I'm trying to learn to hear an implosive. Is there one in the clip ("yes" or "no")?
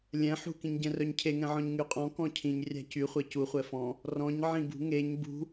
no